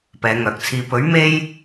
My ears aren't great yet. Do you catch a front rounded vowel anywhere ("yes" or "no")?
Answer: yes